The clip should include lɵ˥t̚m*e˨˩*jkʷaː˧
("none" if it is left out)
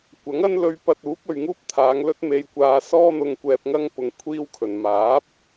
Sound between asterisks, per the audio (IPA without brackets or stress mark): e˧